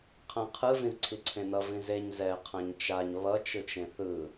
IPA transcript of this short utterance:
qʰãqʰɯ vĩzǀʰiǀʰẽnʌ vĩzeɲ zɛ qʰãɲt͡ʃaɲ βʌ t͡ʃɯt͡ʃẽθɯ

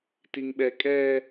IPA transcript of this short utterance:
tiŋɓɛkʼɛ

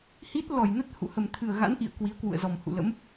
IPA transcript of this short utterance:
hi˦˥t̚ lɔ˧˩jnə˦˥t̚ hṵ˧˨ hə˨˩mt̪ʰɨ˨˩ə̯ɣa̰˧˥nʔḭ˧˨ə̯ kwi˨˦ə̯kwṵ˧˨ə̯zɔ˨˩m hṵ˧˨lə̰˧˥m

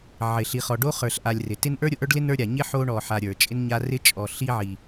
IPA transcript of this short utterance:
ʕɪ˩ ɬi˩χɔ˩ɖo˥ χə˞˨ɬʔa˨lʲrɪ˩ tɪ˦n ʔə˞˥ɾʲʊ˩ʔə˞˥ɖlɪ˥ nə˞˥ɾʲa˩ ɲɪ˥ħo˦ ɳɔ˨ħa˨ ɾʲə˞˩t͡ʃʼɪ˥nɲa˦ rɪ˥t͡ʃʼɔ˨ɬi˥ʕi˨

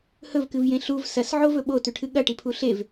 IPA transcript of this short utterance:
hɵvkɨvjẽ ɬuv sɐsʕovɵ ɓotʉʈʰɨ ɠɐʈipʰu ɬev

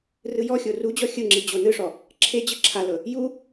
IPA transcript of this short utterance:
rɯjɔxʲo rud͡ʑɔ xʲɯŋ͡ǁi d͡ʑonɯʂɔ | ǁʰe d͡ʑɯǁʰalɤ | ju

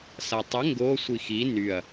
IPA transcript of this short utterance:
satˤə ŋɡo sʷixi nyɐ̯

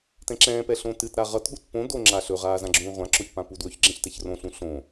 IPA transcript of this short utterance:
tɛ̃ǁɛ̃ːpɛ ɬõtɨtɾa ʁʌtɠut põ do ŋ͡ǁaɬɵʁaː zãɡ͡ǁũː ʁʷãǁoç pãpudwɵçɡ͡ǁɛ̃ç tɛçrõɬũ ɬõ

